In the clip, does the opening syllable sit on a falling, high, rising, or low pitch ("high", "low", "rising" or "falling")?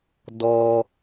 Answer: high